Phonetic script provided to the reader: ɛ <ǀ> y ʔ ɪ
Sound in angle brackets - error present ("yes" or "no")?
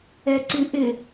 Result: no